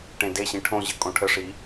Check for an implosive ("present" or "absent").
absent